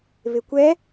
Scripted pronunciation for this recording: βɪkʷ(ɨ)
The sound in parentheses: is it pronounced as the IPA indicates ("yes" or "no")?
no